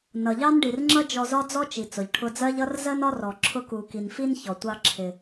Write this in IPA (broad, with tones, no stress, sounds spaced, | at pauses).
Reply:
n ʌ˩ ʎ ɑ˥ n ɖ i˩ r ŋ͡ǁ ʌ˥ d͡ʒ ɔ˧ z ɒ˥ d͡z ɔ˥ t͡ʃ i˩ t͡s ʊ˩ ʎ ʈʰ ʊ˧ d͡z ɜ˥ ʎ ʌ˥ r z ɜ˥ n ɒ˥ r ɔ˩ ǁʰ ʊ˧ k u˩ k i˩ n f i˥ n ç ɔ˩ tʷ ɑ˧ ǁʰ ɪ˩